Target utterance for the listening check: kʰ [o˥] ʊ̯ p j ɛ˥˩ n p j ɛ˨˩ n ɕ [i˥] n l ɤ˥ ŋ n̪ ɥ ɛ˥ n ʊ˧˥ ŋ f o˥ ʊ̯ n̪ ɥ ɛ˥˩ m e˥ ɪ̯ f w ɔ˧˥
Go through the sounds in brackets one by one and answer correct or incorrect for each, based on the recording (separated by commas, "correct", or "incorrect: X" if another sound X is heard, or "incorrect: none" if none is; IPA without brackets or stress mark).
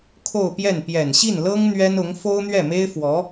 incorrect: o˥˧, incorrect: i˥˩